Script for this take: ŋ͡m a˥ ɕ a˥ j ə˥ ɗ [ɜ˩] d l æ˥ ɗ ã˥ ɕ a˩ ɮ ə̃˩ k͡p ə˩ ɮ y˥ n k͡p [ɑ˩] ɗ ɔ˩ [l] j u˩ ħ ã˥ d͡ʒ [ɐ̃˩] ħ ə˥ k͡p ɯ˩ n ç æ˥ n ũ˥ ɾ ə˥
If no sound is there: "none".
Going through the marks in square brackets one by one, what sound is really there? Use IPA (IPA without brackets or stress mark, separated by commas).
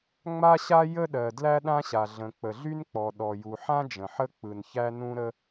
ɜ˩, ɔ˩, none, ə̃˩